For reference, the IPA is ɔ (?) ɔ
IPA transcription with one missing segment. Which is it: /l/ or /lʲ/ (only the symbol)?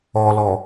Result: l